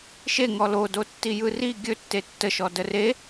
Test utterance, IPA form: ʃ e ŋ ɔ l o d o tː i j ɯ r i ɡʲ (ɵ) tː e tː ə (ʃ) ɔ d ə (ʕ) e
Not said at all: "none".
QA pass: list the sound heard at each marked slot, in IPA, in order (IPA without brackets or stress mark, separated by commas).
ɵ, ʃ, r